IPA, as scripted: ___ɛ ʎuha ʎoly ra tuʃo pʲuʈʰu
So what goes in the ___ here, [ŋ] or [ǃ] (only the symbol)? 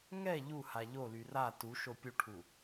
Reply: ŋ